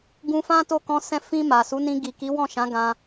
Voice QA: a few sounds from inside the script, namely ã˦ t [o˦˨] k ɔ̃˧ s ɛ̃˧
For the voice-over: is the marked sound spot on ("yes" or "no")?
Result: yes